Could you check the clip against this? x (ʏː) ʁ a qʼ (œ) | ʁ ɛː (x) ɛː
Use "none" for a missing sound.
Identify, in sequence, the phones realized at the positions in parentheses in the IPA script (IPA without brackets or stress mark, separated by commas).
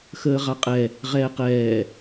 əː, ɛ, q